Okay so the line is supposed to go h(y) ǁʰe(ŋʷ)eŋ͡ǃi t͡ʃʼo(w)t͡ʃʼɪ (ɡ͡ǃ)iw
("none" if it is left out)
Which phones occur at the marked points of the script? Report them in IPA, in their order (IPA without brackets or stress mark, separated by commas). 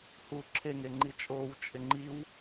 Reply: u, ŋ, w, ŋ͡ǃ